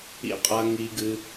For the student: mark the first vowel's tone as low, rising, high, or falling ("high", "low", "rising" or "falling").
low